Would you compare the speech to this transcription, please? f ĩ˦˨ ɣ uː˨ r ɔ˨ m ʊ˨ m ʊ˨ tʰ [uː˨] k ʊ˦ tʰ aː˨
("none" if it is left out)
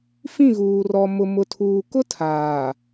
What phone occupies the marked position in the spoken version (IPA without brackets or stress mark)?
uː˨